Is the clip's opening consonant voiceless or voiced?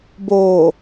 voiced